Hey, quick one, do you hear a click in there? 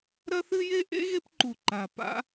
yes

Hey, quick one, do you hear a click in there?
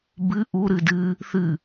no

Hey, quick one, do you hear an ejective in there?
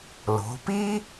no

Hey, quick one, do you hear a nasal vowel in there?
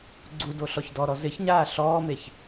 no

